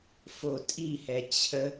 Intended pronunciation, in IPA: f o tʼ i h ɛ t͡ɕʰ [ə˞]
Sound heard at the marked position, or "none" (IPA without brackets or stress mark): ə